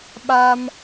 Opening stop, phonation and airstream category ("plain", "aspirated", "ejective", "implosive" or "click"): implosive